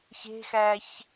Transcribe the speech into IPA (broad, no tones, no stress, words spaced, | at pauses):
çe̤xæç